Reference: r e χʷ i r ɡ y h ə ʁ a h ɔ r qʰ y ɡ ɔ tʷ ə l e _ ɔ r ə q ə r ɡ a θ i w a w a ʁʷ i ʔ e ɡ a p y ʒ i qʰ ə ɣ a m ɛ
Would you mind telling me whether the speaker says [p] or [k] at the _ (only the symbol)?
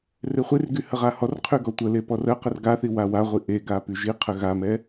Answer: p